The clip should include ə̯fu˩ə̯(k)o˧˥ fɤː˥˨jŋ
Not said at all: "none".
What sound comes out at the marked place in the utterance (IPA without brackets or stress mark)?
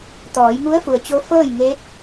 t͡ɕ